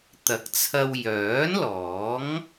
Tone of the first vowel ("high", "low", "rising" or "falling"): rising